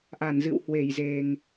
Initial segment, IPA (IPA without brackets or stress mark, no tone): ʔ